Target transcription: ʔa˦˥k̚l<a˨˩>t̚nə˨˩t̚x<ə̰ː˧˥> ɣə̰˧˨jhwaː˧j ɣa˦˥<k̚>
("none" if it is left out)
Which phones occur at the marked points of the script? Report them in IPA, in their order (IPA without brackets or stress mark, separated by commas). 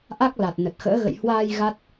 a˨˩, ə̰ː˧˥, t̚